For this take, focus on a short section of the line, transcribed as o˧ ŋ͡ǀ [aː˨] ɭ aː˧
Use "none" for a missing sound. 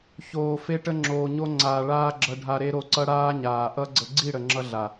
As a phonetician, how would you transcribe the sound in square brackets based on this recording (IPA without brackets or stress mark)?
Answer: aː˨